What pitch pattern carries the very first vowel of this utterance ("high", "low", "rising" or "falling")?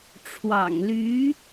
low